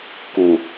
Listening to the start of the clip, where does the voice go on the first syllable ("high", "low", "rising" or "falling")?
low